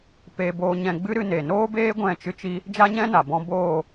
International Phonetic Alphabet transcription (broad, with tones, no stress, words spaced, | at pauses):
pe˧ boː˧ɲɛ̃˧ɡ͡bɨ˦ ɾɨ˧ne˨noː˦beː˦ ɡʷɛ̃˦˨t͡ʃɨ˦t͡ʃi˦ | d͡ʒa˦ɲɛ̃˦na˨ bɔ̃˦ boː˦˨